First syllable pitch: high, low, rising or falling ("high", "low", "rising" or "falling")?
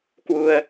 low